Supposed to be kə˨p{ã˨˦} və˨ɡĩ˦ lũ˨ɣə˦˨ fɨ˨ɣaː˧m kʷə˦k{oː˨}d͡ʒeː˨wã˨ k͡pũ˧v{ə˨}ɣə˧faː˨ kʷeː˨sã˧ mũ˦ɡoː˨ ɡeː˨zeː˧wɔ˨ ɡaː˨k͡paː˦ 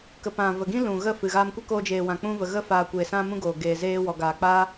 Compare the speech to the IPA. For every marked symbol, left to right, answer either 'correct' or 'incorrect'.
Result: incorrect, incorrect, correct

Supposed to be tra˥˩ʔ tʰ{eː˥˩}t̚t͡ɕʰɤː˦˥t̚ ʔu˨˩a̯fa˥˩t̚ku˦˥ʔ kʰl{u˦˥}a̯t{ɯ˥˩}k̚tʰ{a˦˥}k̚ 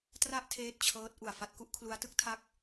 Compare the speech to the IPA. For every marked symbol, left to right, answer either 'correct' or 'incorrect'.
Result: correct, correct, incorrect, incorrect

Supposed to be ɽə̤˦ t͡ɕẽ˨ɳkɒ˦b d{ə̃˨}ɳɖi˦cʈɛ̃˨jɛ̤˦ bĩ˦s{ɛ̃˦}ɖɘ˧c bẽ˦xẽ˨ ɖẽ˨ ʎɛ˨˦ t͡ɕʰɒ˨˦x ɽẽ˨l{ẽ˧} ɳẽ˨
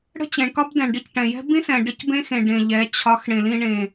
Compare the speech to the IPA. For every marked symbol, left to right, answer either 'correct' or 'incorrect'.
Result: incorrect, incorrect, incorrect

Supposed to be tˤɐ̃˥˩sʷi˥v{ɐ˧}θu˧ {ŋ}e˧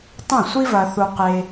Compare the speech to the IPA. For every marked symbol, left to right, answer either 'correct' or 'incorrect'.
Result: correct, incorrect

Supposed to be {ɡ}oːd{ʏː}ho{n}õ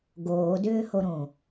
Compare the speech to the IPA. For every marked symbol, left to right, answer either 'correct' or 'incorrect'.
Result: correct, correct, incorrect

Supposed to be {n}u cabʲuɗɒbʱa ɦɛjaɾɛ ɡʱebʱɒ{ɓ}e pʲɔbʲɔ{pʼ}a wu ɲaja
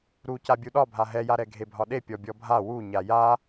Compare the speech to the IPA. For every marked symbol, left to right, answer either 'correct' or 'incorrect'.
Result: incorrect, incorrect, incorrect

